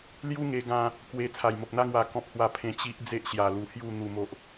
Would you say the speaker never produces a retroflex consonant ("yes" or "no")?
yes